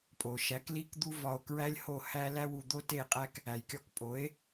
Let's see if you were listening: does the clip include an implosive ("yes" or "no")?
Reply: no